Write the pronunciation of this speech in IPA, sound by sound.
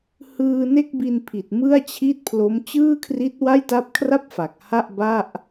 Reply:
h ɯː˧ n e˥˩ k̚ b i˧ n pʰ i˨˩ t̚ m ɯ˥˩ a̯ t͡ɕʰ i˥˩ t̚ pʰ l o˦˥ m t͡ɕ ɯː˥˩ kʰ r i˦˥ t̚ w a˥˩ j t a˦˥ p̚ kʰ r a˥˩ p̚ f a˨˩ k̚ h a˥˩ ʔ b a˥˩ ʔ

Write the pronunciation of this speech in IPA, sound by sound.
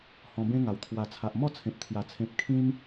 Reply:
h ɔ̃˧ b ẽ˦ ŋ a˨˩ w t̪ʰ w a˨˩ t͡sʰ a˨ ʔ m ɔ˥˧ t͡sʰ ẽ˨ p̚ t̪ʰ j a˨˩ t͡sʰ ẽ˨ p̚ kʰ ĩ˧ m

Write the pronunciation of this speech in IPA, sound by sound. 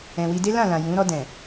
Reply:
ɛ̃˨ w i˧ d e˦ l ã˦˨ l ã˨ j ũ˨˦ ɾ ɔ˧ d ɛ̃˨

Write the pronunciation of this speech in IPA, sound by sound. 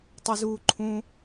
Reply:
tˤ o z uː ǃʰ ũ

